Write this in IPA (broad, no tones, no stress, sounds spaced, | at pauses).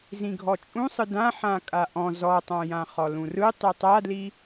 z ĩ ɡʱ ɔ t͡ʃʼ ũ sˤ ɯ d ã ħ ã kʼ a ʔ ɔ̃ z ɔ tˤ ã j ã χ ɔ l ũ r ɯ tˤ i tˤ a d l i